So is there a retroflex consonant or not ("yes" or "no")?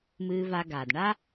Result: yes